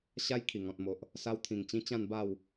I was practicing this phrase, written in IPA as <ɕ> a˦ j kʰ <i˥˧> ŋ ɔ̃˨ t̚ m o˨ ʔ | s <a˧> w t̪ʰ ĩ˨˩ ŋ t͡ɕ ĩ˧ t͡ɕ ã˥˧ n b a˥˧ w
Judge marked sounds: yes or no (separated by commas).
yes, no, yes